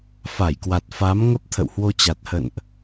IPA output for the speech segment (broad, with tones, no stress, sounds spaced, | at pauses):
f a˧˩ j k w a˨˩ t̚ f a˨˦ m ŋ ə˦˥ p̚ t̪ʰ ə̰˧˨ w h w o˧ t͡ɕ a˨˩ t̚ h ə̰˧˨ n ʔ